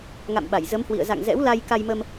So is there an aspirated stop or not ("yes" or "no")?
no